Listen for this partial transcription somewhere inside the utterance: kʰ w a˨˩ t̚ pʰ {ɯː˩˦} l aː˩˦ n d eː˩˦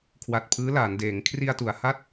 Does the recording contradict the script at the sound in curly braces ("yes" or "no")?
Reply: yes